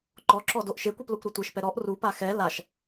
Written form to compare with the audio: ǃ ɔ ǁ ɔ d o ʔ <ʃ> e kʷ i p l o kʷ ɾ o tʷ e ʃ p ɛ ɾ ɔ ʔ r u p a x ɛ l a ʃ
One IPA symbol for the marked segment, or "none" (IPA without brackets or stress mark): ʃ